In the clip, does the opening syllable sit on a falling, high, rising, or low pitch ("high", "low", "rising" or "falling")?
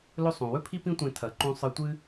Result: high